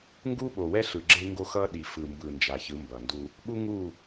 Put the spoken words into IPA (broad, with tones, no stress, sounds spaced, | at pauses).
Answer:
ŋ ɡ u˦ ɓ o˨ w ɛ˦ ɬ ɯ˨ ɡ͡ǁ e˦ ŋ ɡ o˦ x ʌ˦ ɗ i˨ f ɯ˨ m b ɯ˨ n d͡ʒ a˨ ç ɯ˨˦ m b ʌ˨ n d u˦ | ɓ u˦ ŋ u˦˨